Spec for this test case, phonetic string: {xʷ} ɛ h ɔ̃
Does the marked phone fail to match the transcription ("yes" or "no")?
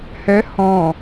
yes